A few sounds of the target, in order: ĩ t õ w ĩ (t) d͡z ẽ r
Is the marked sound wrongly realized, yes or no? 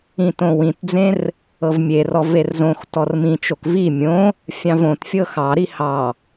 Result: no